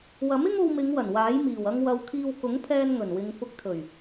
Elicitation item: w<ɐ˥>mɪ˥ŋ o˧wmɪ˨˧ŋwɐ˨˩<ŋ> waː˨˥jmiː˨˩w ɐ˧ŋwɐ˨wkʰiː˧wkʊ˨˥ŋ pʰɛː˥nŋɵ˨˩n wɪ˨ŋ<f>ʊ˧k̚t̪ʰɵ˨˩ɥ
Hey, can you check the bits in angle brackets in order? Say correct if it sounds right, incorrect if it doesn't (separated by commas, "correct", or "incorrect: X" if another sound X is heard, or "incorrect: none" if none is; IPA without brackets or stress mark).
incorrect: ɐ˨˥, incorrect: n, correct